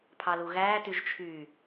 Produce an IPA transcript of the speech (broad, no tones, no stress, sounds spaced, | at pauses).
pʰ ɑ l u ɣ æː t y ʒ t͡ʃʰ y